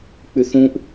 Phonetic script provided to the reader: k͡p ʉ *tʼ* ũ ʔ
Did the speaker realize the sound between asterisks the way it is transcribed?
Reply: no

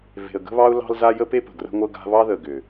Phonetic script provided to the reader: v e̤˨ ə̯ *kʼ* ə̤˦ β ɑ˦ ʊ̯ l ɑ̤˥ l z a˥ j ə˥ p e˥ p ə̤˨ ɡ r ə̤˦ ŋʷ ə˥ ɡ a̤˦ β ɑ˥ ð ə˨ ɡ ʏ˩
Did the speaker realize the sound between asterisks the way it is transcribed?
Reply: no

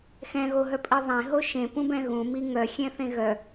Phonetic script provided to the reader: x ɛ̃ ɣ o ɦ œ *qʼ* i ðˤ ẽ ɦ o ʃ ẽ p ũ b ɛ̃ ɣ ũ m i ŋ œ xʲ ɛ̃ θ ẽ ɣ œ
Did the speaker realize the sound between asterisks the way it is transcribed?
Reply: no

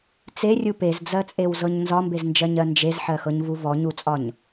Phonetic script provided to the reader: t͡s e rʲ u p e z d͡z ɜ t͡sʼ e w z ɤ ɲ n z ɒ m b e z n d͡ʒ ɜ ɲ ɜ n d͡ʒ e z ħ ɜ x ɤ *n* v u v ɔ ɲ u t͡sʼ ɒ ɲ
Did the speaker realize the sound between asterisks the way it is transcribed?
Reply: no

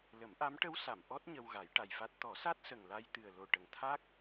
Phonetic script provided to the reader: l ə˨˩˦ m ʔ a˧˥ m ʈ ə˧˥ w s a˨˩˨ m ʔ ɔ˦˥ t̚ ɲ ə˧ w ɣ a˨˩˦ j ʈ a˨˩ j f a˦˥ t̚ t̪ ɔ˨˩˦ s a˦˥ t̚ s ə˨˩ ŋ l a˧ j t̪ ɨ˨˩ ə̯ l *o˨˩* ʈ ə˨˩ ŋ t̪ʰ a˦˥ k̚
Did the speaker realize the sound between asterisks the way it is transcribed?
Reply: yes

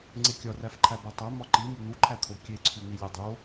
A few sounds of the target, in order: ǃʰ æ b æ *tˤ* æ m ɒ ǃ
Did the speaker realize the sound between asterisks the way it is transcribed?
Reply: yes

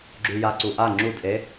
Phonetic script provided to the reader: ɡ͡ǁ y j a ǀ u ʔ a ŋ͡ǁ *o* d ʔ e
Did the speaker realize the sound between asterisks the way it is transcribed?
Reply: no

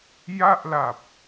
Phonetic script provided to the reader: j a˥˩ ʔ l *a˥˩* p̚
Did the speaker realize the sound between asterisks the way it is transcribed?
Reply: no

